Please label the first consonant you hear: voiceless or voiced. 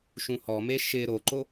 voiceless